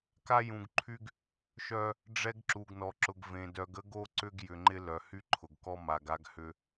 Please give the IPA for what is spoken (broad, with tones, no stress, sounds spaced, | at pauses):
k a˦ j ũ˨ ɡ ǃʰ y˦ ɡ | ʃ œ˦ | ɖ͡ʐ ɛ˦ ɡ ǁ u˨ ɡ n ɔ˨ ǁ ʊ˨ ɡ v ẽ˨ d œ˨ ɡ ə˦ ɡ o˦ ǀ ʏ˦ ɡ j ʏ˨ ŋ͡ǃ ɪ˦ l œ˨ h y˦ ǃʰ ʊ˨ ɡ k ɔ˦ m a˨ ɡ a˦ ɡ h ʏ˦